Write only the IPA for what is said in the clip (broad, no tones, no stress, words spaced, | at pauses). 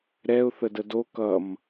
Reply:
ɾɛʊ̯ θədədo kʌm